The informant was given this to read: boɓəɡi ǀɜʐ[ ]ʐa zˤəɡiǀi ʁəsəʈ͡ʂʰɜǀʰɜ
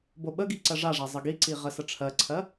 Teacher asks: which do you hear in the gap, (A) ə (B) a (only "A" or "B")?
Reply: B